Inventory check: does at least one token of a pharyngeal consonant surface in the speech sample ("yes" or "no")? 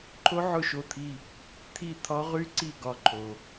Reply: yes